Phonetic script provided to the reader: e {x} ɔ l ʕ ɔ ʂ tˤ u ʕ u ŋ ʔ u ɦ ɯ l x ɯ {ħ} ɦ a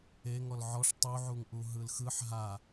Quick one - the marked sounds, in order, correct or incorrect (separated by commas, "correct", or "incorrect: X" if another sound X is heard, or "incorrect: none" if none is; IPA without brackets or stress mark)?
incorrect: ŋ, correct